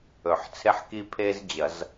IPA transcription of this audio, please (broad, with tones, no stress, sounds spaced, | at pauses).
ɵ˨˩˦ ħ t͡sʰ e˦ ħ k i˦ pʰ e˦ z d͡ʑ ɐ˨˩˦ z